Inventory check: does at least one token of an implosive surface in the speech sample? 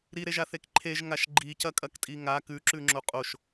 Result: no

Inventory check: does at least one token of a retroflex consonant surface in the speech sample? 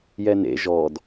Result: no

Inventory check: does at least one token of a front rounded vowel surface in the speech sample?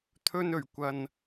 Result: no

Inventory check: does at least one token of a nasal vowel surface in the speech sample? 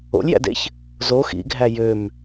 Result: no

